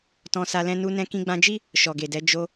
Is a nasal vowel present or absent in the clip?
present